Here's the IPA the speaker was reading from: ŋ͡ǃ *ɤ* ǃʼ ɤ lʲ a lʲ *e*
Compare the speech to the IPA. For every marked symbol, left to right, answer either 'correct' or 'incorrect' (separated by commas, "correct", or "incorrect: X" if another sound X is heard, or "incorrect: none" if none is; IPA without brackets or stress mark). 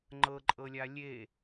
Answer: correct, correct